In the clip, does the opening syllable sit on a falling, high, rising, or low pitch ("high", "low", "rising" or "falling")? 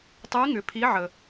rising